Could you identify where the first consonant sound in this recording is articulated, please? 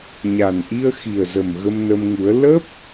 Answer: palatal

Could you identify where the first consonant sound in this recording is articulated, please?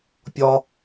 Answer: labial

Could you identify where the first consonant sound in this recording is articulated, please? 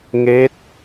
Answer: velar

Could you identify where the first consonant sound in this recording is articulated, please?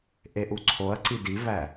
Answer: glottal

